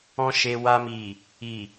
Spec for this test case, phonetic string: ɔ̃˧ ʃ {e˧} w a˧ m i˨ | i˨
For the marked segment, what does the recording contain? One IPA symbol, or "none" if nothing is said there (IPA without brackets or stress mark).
e˧